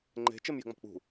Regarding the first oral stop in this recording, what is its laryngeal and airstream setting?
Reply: click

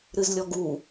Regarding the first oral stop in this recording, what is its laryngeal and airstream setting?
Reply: plain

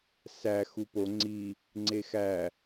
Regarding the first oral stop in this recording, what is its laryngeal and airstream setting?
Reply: plain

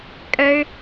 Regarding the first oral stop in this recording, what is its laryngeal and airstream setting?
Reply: ejective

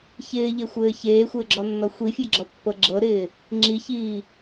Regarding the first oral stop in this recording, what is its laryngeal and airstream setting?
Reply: click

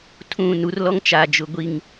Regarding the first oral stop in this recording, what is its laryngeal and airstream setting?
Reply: aspirated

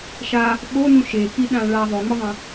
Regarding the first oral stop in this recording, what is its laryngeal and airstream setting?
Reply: implosive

